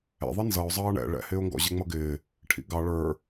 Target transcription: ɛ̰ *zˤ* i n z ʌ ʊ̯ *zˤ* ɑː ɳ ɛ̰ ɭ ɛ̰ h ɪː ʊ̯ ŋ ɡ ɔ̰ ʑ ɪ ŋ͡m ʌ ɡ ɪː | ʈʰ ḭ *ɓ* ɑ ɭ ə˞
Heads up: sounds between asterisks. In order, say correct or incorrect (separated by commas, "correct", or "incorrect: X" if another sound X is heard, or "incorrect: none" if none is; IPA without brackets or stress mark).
incorrect: ðˤ, correct, incorrect: ɡ